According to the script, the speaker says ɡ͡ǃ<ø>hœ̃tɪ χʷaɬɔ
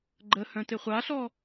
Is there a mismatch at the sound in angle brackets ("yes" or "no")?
yes